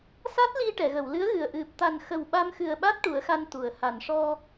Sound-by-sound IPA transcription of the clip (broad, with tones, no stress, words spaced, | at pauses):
sa˦˥t̚li˧ ʈɛ˨˩˨ɣə˨˩˨wlɨ˧˥ə̯ɣɨ˨˩ə̯ ʔɨ˨˩p̚t̪a˨˩nxə˨˩w ɓa˧mxɨ˨˩ə̯ɓa˦˥t̚ ʈu˨˩˦ə̯xa˧nt̪u˨˩˨ə̯ ha˨˩˨nʂɔ˧